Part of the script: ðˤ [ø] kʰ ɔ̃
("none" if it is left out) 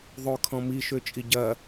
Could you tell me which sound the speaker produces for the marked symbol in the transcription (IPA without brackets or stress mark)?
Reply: ø